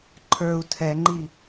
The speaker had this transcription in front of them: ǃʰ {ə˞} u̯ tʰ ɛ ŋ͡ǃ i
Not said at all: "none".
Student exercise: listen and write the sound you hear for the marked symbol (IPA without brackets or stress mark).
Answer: ə˞